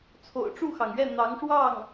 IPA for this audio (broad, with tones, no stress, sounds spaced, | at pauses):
t͡sʰ o̰˨˩ ʊ̯ ʈ͡ʂ u˥˩ x ɑ˩ ŋ ɥ ɛ˥˩ n̪ ɑ˧˥ ŋ ʂ w ɑ˥˩ ŋ